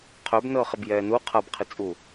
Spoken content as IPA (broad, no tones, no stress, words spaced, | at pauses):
qʰœbnɤːχ ɘbjɛːnu qʰabqʰit͡sʼu